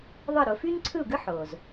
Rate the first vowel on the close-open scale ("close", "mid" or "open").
close